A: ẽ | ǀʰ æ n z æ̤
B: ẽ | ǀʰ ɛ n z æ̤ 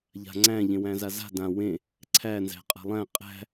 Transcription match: A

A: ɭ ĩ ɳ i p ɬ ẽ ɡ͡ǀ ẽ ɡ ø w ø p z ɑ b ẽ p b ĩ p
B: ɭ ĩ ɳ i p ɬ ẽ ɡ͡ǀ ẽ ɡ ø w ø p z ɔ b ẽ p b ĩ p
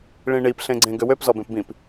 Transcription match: B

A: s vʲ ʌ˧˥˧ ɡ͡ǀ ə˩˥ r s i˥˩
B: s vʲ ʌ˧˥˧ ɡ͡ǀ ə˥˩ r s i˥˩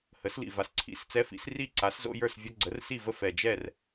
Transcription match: A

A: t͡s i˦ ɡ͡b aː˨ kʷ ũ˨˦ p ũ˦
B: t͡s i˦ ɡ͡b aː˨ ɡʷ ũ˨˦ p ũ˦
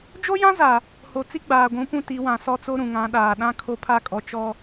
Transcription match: B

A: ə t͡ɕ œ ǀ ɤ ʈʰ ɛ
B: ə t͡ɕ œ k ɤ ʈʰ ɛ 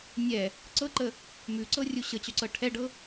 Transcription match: A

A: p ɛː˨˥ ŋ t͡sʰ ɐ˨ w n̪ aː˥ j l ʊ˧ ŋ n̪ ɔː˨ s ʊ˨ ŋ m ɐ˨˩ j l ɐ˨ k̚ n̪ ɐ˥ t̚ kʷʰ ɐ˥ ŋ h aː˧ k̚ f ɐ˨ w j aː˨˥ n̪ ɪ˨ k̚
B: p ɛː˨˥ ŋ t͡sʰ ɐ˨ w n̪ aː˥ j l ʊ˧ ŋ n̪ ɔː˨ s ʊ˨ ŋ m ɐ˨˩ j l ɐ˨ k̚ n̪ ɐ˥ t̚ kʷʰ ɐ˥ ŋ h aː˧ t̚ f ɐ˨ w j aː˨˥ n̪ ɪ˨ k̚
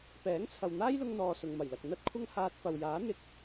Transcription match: B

